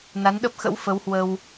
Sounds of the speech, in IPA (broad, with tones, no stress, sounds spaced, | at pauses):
n a˨˦ n ɗ ə˦˥ p̚ x ə̰˧˥ w f ə˨˦ w h w ə˧ w